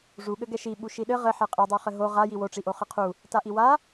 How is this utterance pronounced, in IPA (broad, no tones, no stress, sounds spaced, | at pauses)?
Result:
ʐ u ɠ ɘ ɡ ɛ ʃ i ɓ u ʃ i ɗ ɘ ʁ ɘ ħ ɛ qʼ i dˤ o χ ɘ ɦ o ʁ a j i w o ʈ͡ʂ i ʔ o χ ɘ qʰ u | t a ʔ i w a